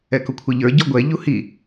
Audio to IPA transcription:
ɛkʊkʷʰɛʎə˞ ɟɔɡʷɛ ʎuhi

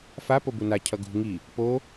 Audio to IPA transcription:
fa pobuna cʰʌɡṳ ŋi | po

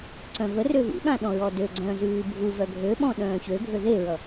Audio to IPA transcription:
ǀœ̃vərø vṵɠã ɗɔ̃ɹɔdøɡ͡ǀœ̃ː zʉːbʱuvœ ɡʱøɓɔ̃ ɗœ̃ːçøɡʱø ðeɹʌ

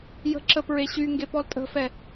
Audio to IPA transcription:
jə̤ǁə pɹeɕyŋɡe pɔltʼə̤fɛ

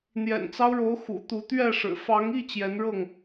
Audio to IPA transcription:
n̪jɛ̰˨˩nt͡sɑ˦ʊ̯ɻo˨˦ʊ̯ xṵ˨˩t̪u˨˦ t̪ɥɛ˥˨ʂɻ̩˨˩ fɑ˨˦ŋi˥˨ t͡ɕjɛ˨˦nɻɤ˥˨ŋ

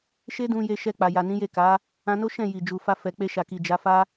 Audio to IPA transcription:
ʃe˦dũ˧ je˧ʃɛ˧k͡pa˨ja˨ nĩ˨˦je˦˨ka˨˦ | ã˧no˦ ʃɛ̃˦˨ ji˨ d͡ʒu˨fa˧ fɛ˨k͡pe˧ʃa˨ki˨ d͡ʒa˨˦fa˦

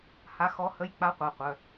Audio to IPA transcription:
ha˧˥xɔ˧˥hə˧˥˧j k͡pa˧˥qʷa˩˧˩qʷœ˩˧˩

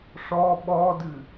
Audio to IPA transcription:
ʂɔ ɓɔdɨ

